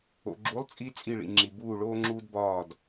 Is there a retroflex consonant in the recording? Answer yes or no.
yes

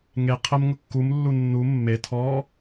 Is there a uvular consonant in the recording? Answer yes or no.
yes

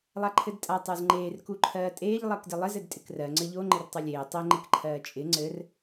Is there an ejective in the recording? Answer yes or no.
yes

